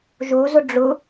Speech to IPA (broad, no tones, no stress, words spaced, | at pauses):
ʒozʊ ɖ͡ʐʊ